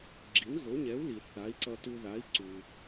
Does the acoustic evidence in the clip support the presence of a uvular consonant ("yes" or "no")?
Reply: no